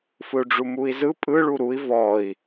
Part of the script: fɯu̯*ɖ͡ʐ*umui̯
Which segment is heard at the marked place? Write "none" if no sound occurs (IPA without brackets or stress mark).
ɖ͡ʐ